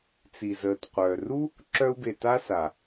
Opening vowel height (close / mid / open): close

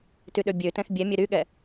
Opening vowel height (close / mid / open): close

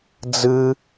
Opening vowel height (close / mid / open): close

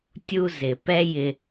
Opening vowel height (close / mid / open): close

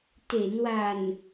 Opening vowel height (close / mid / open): mid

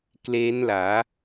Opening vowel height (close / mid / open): mid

